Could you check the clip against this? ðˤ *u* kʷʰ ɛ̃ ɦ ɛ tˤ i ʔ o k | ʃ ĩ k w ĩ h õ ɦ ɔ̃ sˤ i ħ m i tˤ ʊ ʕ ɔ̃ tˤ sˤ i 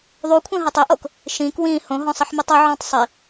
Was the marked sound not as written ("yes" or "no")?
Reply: no